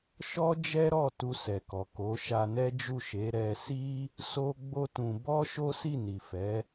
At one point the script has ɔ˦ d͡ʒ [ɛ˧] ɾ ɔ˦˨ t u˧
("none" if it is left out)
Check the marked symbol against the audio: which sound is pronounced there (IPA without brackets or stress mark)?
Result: ɛ˦